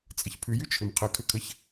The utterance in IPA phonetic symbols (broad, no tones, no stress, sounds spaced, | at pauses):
t͡sʼ ə ç pʰ ʉ j ʉ t͡ʃʰ ʏ m qʰ ə kʰ ʏ kʰ ə ç